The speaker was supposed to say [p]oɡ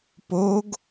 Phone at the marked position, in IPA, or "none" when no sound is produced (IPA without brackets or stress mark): p